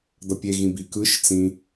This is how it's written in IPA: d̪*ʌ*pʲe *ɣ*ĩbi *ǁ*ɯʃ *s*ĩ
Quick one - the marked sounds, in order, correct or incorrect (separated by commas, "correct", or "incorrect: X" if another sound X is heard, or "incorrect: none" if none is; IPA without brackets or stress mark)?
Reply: correct, correct, incorrect: k, incorrect: t͡s